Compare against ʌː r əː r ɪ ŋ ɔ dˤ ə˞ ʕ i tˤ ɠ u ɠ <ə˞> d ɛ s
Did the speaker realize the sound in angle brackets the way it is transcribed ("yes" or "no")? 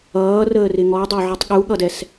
no